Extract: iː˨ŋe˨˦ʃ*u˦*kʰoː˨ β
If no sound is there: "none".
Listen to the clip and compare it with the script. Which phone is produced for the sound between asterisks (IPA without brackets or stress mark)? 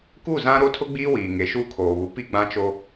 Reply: u˦